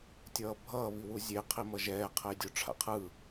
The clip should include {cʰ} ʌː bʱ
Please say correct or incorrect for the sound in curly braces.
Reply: incorrect